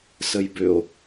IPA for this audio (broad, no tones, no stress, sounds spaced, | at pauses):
s ə j b ʏ o̯